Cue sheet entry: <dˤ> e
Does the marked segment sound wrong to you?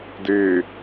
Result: yes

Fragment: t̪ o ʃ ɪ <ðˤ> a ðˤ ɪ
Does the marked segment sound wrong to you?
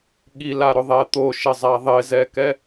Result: yes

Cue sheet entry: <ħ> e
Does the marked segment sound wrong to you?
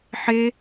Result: no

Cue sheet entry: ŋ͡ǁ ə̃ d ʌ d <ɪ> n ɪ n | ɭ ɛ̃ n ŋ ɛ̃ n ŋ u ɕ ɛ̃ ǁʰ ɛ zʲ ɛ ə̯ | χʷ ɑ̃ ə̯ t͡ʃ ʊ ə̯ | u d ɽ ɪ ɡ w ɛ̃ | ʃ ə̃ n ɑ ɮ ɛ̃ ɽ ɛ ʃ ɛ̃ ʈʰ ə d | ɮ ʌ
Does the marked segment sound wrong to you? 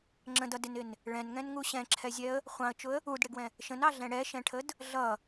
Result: no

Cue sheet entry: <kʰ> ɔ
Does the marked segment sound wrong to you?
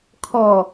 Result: no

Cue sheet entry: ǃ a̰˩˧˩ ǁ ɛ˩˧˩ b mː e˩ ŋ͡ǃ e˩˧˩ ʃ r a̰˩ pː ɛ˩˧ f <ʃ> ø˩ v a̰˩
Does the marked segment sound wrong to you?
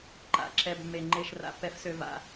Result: yes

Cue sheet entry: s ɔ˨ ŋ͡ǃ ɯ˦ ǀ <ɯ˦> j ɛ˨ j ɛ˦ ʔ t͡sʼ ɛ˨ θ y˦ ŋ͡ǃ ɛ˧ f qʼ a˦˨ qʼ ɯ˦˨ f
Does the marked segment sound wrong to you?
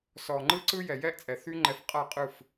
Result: no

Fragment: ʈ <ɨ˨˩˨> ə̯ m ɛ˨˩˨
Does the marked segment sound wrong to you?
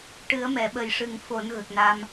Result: yes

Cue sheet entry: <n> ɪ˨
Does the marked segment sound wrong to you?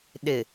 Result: yes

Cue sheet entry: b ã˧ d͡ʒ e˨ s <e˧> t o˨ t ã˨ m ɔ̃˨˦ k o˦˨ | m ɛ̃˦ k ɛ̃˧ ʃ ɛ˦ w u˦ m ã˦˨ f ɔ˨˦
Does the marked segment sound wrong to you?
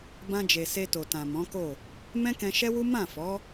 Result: no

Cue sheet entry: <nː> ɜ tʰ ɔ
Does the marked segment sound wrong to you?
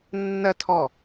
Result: no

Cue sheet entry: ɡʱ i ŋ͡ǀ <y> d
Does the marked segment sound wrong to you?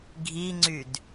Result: no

